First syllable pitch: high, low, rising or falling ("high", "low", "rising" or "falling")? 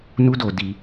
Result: high